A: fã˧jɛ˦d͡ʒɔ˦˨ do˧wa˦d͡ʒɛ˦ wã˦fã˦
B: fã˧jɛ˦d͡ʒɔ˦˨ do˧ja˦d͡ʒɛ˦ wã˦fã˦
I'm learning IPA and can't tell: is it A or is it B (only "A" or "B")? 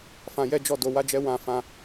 A